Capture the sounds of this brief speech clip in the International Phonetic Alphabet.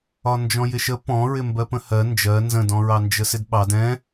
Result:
ɒ n d͡ʒ ɔ̃ j ɪ ʃ ə p ɔ̃ ɹ ɪ m b ɜ p ə̃ h ɜ n d͡ʒ ɜ n z ə̃ d ɔ̃ ɹ ɑ n d͡ʒ ə s ɪ d ɓ ɑ d ɛ̃

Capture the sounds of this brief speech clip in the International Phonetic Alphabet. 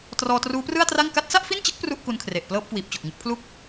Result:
t r ɔː˧ t r uː˦˥ p r ɯ˥˩ a̯ t r a˥˩ ŋ k a˦˥ t̚ s a˥˩ ʔ f i˥˩ n t͡ɕ ɯ˦˥ k̚ p r u˥˩ ʔ k u˧ n kʰ r e˨˩ ʔ p l ɤː˥˩ p̚ k w iː˨˩ p̚ t͡ɕ o˨˩ k̚ ŋ ɯ˥˩ k̚ pʰ l u˥˩ k̚

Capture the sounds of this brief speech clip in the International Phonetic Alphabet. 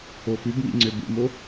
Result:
o f ʉ b m ḭ ŋ͡ǀ ø b ṵ m o

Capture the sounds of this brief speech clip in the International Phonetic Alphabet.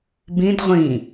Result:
b ĩ d ʁʷ ĩ

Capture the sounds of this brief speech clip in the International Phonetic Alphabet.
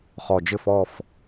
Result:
χ ɔ˨˩ d͡ʒ ɘ˥˨ f ɔ˥˨ f

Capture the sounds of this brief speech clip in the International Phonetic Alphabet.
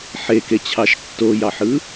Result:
ħ e k e t͡ɕʰ ɑ ʃ tː o j ɑ ħ ɯ

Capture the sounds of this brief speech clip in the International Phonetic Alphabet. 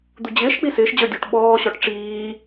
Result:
d̪ u d͡ʑ ɪː ʃ k͡p i s ɪː ʃ d͡ʑ ə˞ dʲ u ʈ ɓ ɔː ɕ ɔ ʈ ʈ͡ʂ iː

